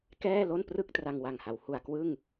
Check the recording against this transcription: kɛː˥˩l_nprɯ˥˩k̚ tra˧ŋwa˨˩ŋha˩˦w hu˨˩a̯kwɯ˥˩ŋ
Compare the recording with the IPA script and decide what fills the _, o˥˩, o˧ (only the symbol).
o˥˩